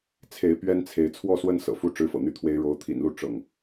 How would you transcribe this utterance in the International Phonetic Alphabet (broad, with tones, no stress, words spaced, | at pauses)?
t͡sʰe˨˦ɪ̯ pɥɛ˦nt͡sʰe˨˦ɪ̯ t͡sʰwɔ˥˨swə˦n sɤ̰˨˩fu˦ ʈ͡ʂɻ̩˦fɤ̰˨˩n̪y˥˨t̪ʰwe˦ɪ̯ ɻo˨˦ʊ̯t̪ʰḭ˨˩nlu˥˨ ʈ͡ʂɤ̰˨˩ŋ